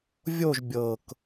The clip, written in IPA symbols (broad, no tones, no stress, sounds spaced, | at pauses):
vʲ o ʒ bʲ ɤ k